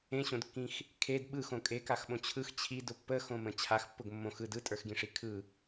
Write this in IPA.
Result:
ẽ ɕ õ d kː ĩ x | kʰ e d ɓ ɯ x õ kʼ e k a x ɓ õ t͡ɕʰ ɯ x t͡ɕʰ i d ʊ pː ə x õ m ə̃ t͡ɕʰ a x pː ʊ ɡ mː õ x ɯ d ɯ tʼ ə˞ x ɡ ĩ ʂ i kʰ ɯ

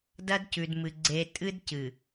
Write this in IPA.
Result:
d ɐ˦ d c ʉ˨ d m ɨ˨ ɡ͡ǀ e˨ tʼ ɨ˦ d c ɨ˨

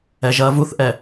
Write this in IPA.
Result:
ɛ ʒ ɐː v u θ ʔ ɛ

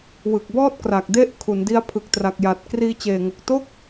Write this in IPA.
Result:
w ɯ˨˩ k̚ b ɔː˥˩ t̚ k r a˨˩ k̚ d e˥˩ ʔ kʰ u˩˦ n d i˦˥ a̯ pʰ ɯ˨˩ k̚ t r a˨˩ k̚ j a˨˩ t̚ k r iː˧ t͡ɕ eː˨˩ ŋ o˨˩ k̚ t o˥˩ k̚

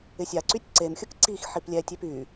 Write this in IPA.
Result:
ɪ sʲ a ǀ y tʲ ǀ e m xʲ ʊ k ǀ i x ħ i p lʲ ɛ tʲ e p y

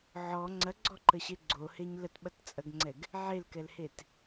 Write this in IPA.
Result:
ʕ ɔ ŋ͡ǀ ɐ ɡ͡ǀ ɔ ǃ ə ɕ e ɡ͡ǀ o h e ɲ l ə t ɓ ɐ t t͡sʼ ɐ ɡ ŋ͡ǀ ɛ ɡ | ʕ e l k ɛ l h e t

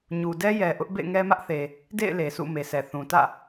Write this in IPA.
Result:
ɲ u˨ d ɛ˦ j ɛ˨ ʔ ʊ˦ ʔ b ḛ˦˨ ɪ̯ ŋ ɛ˦ m ä˦ ʔ θ e˨ | d ḛ˦˨ ɪ̯ l e˨ s ṵ˦˨ m e˨ s ɛ˨ θ ũ˨ t ä̰˦˨

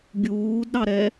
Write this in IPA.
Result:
ɡʲ uː d ɾ ɑ ɾ ɛ

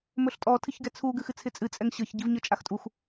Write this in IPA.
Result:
m ɵ ɬ tʼ ɔ tʰ ɨ ç ɡ ɛ t͡sʰ u ɡ ɨ x ɨ t͡sʰ ɪ t͡sʼ ɨ t͡sʼ ɛ ŋ ɕ ɤ ç ɟ i v ɲ ɤ t͡ʃʼ a x tʼ u x

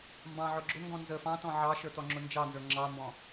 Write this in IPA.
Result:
m b ɑ̃ ʕ ʊ ɡ͡ǁ ʊ ŋ ɡ ɔ̃ n z ə f ɑ̃ t ɔ̃ ʕ ɑ ʃ ə˞ t ɔ ŋ͡ǁ ʊ n d͡ʒ ɑ n z ə˞ ŋ͡ǁ ɑ m b ɔ̃

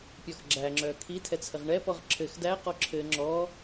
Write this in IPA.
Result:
pʲ ɒ x ɡ͡ǁ æ ŋ͡ǁ œː kʰ i tʰ ɛ t͡sʰ ɘ ʁ ɳ ɛ p ɔ ʁ ǁʰ ɘ x d æ q ɔ ǁʰ ɘ ŋ͡ǁ ɔ

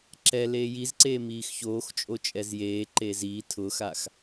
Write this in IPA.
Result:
ǁ ɛ l eː j i z ǀ eː m iː x ç oː x t͡ʃʼ o t͡ʃʼ ɛ z j eː ǃ eː z iː tʰ ʊː x a x

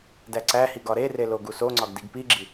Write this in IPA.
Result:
d æ ǀ æ h i ɡ ɒ ɾ e r e l o ɡ u s o ŋ͡ǀ ɒ ɡ d i ɡ p i ɡ͡ǁ i

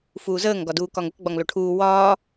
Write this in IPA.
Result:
f uː z əː ŋ ɡ ɒ d uː k ɒ ŋ ə k ɡ͡b ɒ ŋ l o ʈʰ uː w ɒː

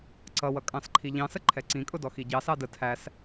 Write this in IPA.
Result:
ǀ ʌ w ʌ kʼ ɑ̃ s ǃʰ i ʎ ɑ̃ s ə ǃʰ ɛ ǀ ĩ kʼ ʊ d ɔ x i ɟ ɑ s ɑ d ə tʰ æ s

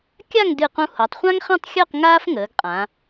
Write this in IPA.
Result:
kʲ a˥˧ ŋ d ɨ˧˩ q ũ˧ h o˩˧ tˤ χʷ ã˥ ŋ χ ɛ̃˥˧ tˤ xʲ əː˥˧ q ŋ aː˥ f ŋ əː˩˧ ɡ qʼ ã˩˧

